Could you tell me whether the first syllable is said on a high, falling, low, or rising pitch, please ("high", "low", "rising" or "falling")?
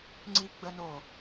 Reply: high